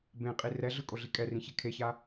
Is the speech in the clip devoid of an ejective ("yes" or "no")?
no